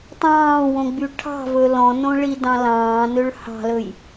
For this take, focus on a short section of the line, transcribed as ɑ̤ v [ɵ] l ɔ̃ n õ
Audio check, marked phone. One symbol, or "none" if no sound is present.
ɵ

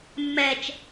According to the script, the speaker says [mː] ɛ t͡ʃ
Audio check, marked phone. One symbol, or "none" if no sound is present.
mː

